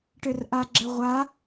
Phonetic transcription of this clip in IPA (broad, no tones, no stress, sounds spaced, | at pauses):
ʈ ɘ r ʔ a ɡ͡ǁ ɘ ʁʷ a